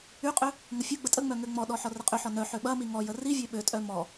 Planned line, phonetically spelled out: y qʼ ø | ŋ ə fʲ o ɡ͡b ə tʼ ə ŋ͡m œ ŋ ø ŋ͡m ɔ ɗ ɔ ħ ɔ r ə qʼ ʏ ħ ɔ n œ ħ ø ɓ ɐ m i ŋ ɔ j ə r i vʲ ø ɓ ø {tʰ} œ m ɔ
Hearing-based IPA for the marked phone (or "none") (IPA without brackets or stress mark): tʼ